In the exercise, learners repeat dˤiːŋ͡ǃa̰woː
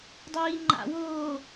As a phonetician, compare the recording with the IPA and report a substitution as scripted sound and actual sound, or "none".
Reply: none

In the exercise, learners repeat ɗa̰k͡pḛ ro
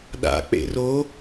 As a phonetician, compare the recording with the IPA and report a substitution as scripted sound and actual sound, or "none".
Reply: none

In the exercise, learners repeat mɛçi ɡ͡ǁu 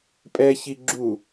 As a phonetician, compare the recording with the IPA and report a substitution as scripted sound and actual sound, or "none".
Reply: m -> pʼ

